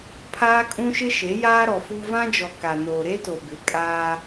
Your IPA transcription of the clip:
pʰ aː˦ kʼ ũ˦ ʃ ɪ˦ ʃ e˨˦ j aː˦ ɾ ɔ˨ f u˦ v ã˦ d͡ʒ ɔ˨ k a˨ n oː˨ ɾ e˦ t o˨ b ɪ˨˦ kʼ aː˦

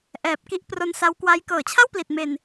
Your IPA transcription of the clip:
ʔ ɛː˨˩ p̚ k i˦˥ ʔ p r o˦˥ n s a˦˥ w k w a˦˥ j k ɤː˩˦ t͡ɕʰ a˥˩ w p l i˨˩ t̚ m e˧ n

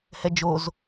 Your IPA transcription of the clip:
h ɛ d͡ʒ o z

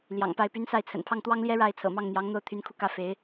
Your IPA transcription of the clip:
l j ɑ̰˨˩ ŋ p a˥˩ ɪ̯ p y˧˥ n s a˥˩ ɪ̯ t͡sʰ ə̰˨˩ n pʰ ɑ˥˩ ŋ t̪ w ɑ˥ ŋ l j ɛ˥ ɻ a˥˩ ɪ̯ t͡sʰ ɤ̰˨˩ m ɑ˥˩ ŋ n̪ j ɑ˧˥ ŋ n̪ o˥˩ ʊ̯ t̪ʰ y˧˥ n kʰ u˧ k ä˥˩ f e˧˥ ɪ̯

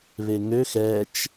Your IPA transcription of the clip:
β e ŋ ø x ɛ t͡ʃ

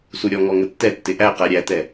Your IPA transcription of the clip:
s u ɾʲ ɔ ŋ ɔ ŋ ə tː ɛ tː ɪ ʔ æ q æ ɾʲ æ t ɛ

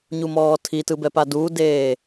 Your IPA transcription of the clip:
ɲ u m ɔː tʰ i t ɯ b ɛ p a d uː d eː

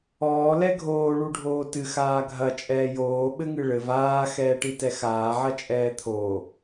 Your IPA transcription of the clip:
ɔː l ɛ ɡʱ oː ɭ u ɖʱ oː t ɨ x aː ɡʱ ɐ t͡ʃʼ ɛː j oː ɓ ɘ ŋ ɨ ɭ ɘ v aː x ɛː ʈ i t ɛ x aː ʕ ɐ t͡ʃʼ ɛː t̪ʰ o

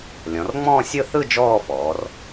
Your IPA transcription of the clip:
lʲ ɔ̃˩˧ r ŋ͡m ɔ̃ː˥˧ sʲ ɯ˥˧ θ ɯ˥˧ d͡ʒ ɔː˥˧ f ɔː˩˧ r

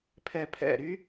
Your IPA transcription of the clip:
pʰ ɛ pʰ ɛ̰ ɾ y

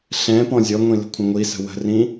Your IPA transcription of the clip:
ɬ ɛ̃ p ɔ̃ zʲ ɔ ŋʷ ĩ l ə̤ kʷʰ ə̃ ŋʷ i s ə̤ w ə̤ r ĩ

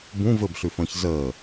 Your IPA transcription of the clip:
b ũ v ɘ b ɬ ʉ f ə̃ː ç z əː

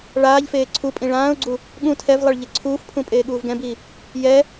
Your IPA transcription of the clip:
ɭ aː ʎ f eː ǀʰ u pʼ ĩ ɭ ãː ʊ̯ ɡ͡ǀ u | ɠ ũ tʰ ɛ v lˠ ɛ ɭ ʎ e ǀʰ uː f pʰ ũ pʼ eː ɠ uː v ɡ ɛ̃ b iː | j ɛ

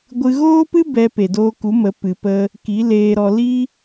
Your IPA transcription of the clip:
ɡʷ ɨ˧ ɣ oː˦ p ɨ˦ b ɛ˧ p e˨ d oː˧ k u˨˦ m ə˨˦ p ɨ˨ p ə˧ | k i˨˦ l eː˧ ɾ ɔ˧ l i˦

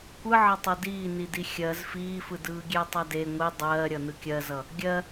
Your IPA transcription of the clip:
kʷ ɯ ʕ ʌ tˤ ɤ d iː n i d i xʲ ɜ z f iː f ɯ d ɯː ɡʲ e tˤ ʌ d e ŋʷ i dˤ ɜː ɾʲ ʌ n ɯ kʲ ɜ z ʌ | ɡʲ ɜ

